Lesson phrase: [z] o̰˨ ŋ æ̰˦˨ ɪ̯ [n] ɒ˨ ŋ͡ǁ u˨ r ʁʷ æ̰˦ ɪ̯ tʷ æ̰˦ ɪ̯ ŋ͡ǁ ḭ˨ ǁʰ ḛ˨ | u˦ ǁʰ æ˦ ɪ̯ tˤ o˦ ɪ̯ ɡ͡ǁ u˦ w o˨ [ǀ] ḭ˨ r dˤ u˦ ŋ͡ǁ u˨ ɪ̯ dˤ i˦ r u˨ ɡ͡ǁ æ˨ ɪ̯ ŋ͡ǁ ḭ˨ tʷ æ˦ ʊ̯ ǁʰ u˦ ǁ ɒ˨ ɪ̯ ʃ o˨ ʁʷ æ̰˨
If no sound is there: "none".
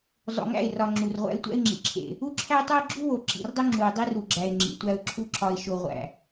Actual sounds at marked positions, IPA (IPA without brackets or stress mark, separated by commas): zˤ, r, ǁ